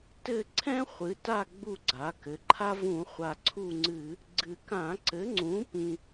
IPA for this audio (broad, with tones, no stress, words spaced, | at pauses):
tɘ˦˨ ǀʰɛ̃˥χʷɨ˩˧ta˦˨ ɡ͡bu˦˨ɡ͡ǀa˩˧kɘ˩˧ǃʰa˥ vũ˧˩˧χʷa˨˩ǀʰu˦˨ŋ͡ǀɨ˧˩˧ | ɡ͡ǀɨ˨˩kã˧˩˧ ǀɘ˩˥ ŋ͡ǀũ˩˥pĩ˨˩